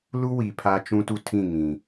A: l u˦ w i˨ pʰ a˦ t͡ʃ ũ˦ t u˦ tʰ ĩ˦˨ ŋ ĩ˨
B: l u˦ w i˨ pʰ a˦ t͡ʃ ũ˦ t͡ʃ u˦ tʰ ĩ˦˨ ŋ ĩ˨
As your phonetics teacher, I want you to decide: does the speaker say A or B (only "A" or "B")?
A